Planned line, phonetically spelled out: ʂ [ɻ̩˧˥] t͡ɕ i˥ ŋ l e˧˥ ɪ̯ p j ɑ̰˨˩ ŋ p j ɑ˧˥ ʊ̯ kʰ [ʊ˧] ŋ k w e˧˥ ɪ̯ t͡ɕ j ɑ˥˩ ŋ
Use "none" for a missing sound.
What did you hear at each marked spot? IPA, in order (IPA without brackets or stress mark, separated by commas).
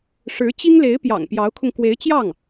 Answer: ɻ̩˧˥, ʊ˧